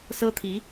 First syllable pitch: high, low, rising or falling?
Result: high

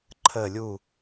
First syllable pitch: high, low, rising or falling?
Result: falling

